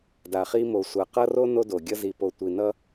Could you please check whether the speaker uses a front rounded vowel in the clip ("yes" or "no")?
no